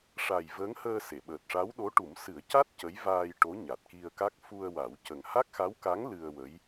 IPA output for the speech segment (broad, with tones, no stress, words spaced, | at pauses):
ʂa˨˩j vəː˧˥ŋhəː˧ se˨˩˨ɓəː˨˩t̚ʂa˧˥wɗo˧˥ ʈu˨˩˦m sɨ˨˩˦ə̯ca˦˥t̚ cə˧˥jvaː˧j ʈo˧˥ɲa˨˩t̚ki˧ə̯ka˦˥k̚ fu˧ə̯wa˨˩˦wcə˨˩ŋ ha˦˥k̚xa˧˥wka˧˥ŋ lɨ˧ə̯wə˧˥j